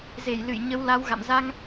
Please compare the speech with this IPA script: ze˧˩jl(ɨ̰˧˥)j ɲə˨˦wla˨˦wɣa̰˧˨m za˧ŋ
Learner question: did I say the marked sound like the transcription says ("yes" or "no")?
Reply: no